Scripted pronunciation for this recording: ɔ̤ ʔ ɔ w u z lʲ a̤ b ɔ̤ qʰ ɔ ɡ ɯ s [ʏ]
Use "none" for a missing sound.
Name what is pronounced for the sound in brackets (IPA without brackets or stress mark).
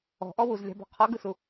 u